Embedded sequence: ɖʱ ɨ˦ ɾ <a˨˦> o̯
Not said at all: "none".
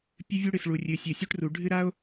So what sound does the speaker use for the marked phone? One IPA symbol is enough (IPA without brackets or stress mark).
a˦